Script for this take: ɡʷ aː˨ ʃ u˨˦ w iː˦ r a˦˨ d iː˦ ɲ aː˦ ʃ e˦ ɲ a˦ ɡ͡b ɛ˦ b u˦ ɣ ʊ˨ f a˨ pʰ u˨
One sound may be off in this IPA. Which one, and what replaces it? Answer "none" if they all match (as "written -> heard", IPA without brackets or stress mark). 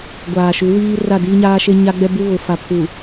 none